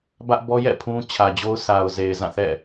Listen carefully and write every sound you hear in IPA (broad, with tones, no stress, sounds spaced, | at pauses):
b ä˦ ʔ b ɔ˦ j ɛ̰˦˨ pʰ ũ˦ t͡ɕʰ ä˨ d͡ʑ o˦ ʊ̯ sʰ a˨ ʊ̯ z e˨ ɪ̯ z ã˦˨ θ ɛ̰˦˨